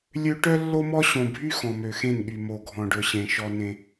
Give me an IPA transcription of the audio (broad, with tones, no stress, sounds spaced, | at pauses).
lʲ ø˦ ʈ œ˦ lː o˦ m ɔ˦ ɕ õ˨ bʱ y˦ x ɔ̃˨ m ø˨ x ẽ˦˨ n ɠ y˨ m o˨ ɡʱ ɔ̃˨ ɖ ɵ˨ ɕ ẽ˨ ʃ ɔ˦ n ẽ˦